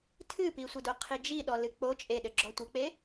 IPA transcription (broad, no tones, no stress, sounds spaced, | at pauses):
tʰ ɨ p i sʷ ɘ d o qʰ i d͡ʒ i ɗ ɔ l ɨ k͡p o t͡ʃʼ e ɗ ɘ ɡ͡ǁ ɔ tʷ ɘ k͡p e